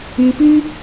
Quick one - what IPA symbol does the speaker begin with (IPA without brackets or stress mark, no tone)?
i